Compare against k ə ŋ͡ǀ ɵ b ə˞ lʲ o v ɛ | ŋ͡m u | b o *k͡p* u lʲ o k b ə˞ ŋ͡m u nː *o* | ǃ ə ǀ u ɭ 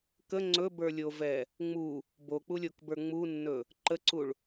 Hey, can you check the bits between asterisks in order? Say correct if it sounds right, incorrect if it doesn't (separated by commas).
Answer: correct, incorrect